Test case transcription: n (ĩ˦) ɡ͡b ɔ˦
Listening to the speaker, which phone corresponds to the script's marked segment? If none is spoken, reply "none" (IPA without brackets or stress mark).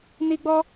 i˦